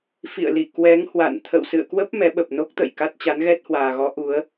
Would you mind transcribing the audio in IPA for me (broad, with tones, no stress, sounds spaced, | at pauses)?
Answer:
f ḭ˧˨ ə̯ l i˧˩ k w ɛ˨˦ ŋ h w a̰˧˨ n t̪ʰ ə̰˧˨ w s ɨ̰˧˨ ə̯ k w ə˦˥ p̚ m ɛ˨˦ ɓ ə˨˩ p̚ n o˦˥ k̚ t̪ ə̰˧˨ j k a˦˥ t̚ t͡ɕ a˨˦ n ɣ ɛ˦˥ t̚ h w aː˨˩ ɣ ɔ˨˦ ʔ u˨˦ ə̯